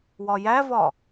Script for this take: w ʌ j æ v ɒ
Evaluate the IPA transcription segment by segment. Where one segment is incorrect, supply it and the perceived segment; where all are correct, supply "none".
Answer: ʌ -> ɒ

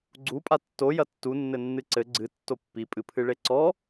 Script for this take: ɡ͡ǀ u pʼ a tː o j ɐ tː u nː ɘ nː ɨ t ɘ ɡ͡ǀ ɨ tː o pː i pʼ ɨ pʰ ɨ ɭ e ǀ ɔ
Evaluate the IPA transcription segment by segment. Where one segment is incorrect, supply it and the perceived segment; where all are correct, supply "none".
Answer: t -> ǀ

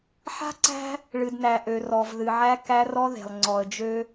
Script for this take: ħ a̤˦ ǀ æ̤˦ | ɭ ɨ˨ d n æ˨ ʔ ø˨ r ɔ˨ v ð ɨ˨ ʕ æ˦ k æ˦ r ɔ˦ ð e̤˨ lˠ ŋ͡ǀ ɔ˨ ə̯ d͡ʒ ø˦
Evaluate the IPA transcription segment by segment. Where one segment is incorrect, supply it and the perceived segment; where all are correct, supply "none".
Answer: none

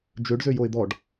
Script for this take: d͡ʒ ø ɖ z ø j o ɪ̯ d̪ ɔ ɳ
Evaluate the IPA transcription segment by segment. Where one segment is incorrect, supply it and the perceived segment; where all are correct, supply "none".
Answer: ɳ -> ɖ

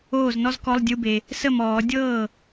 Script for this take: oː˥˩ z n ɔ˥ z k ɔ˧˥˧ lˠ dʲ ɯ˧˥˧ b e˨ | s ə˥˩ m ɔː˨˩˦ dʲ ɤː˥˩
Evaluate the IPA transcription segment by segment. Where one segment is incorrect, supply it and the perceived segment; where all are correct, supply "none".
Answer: none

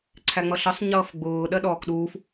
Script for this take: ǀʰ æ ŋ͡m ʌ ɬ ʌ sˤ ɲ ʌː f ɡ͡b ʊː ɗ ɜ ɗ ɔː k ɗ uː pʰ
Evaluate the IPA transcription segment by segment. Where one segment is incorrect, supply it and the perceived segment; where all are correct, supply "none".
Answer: pʰ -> f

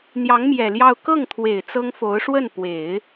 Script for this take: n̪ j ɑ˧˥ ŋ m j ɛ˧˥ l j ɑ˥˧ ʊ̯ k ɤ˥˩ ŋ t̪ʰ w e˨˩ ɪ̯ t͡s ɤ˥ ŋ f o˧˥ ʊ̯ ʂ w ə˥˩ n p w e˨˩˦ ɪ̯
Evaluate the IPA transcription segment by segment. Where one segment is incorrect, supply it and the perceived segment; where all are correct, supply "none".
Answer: ɛ˧˥ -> ɛ˨˩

